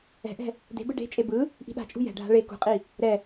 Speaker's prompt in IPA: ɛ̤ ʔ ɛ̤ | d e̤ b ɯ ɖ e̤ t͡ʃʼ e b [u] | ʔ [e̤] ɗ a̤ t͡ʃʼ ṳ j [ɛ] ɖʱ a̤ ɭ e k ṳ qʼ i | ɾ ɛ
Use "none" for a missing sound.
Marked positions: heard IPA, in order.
ɯ, i̤, ɛ̤

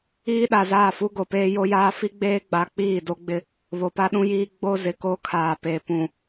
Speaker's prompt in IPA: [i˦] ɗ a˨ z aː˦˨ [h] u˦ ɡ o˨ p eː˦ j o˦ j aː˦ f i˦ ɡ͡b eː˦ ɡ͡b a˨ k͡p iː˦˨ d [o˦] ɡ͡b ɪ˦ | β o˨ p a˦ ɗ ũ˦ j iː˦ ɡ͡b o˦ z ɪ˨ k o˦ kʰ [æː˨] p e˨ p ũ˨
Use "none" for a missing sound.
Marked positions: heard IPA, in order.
iː˦, f, o˦, aː˨

